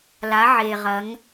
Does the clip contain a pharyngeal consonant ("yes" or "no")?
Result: yes